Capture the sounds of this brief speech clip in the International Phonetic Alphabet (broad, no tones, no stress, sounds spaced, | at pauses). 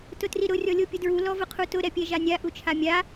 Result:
t ʊ t r i ɾ ʊ rʲ ɔ lʲ o pʲ ʊ d ɹ u l ɔ v ʊ qʰ u t ʊ ɾ ɛ pʲ ɛ ʒ a nʲ a ʔ u t͡ʃʰ a mʲ a